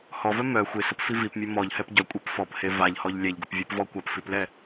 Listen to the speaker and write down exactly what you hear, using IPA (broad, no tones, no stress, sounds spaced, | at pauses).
h ɔ v œ m œ xʷ ɪ s ə p f i v i p mʲ ø m ɔ ʎ h ɛ p ɟ œ kʷʼ e p f ɔ p h e v a ʎ h ɔ ʎ lʲ ɛ ʎ ɡ ə p vʲ œ p v ɔ kʷ a p f i p l ɛ